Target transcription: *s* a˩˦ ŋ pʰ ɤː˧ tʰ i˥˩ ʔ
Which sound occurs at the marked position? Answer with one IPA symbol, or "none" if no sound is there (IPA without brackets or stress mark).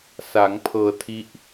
s